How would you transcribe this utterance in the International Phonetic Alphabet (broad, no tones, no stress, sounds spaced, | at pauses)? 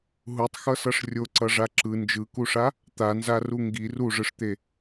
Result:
ɦ u tˤ x ʌ s ʌ ʂ rʲ o ǀ ʌ ʐ a ǁ ɯ n d͡ʒ ɯ k u ʂ a | t̪ a n z a r u ŋ ɡ i r u ʐ ɯ ʂ t̪ e